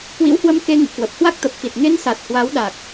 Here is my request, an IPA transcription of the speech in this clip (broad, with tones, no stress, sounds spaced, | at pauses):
k w ḭ˧˥ w h w ə˧ m k e˧ ŋ ɨ̰˧˨ k w ə˨˩ p̚ h w a˦˥ k̚ t̪ ə˨˩ p̚ x i˨˩ t̚ ŋ e˧ n s a˨˩ t̚ h w a˨˦ w ɗ a˨˩ k̚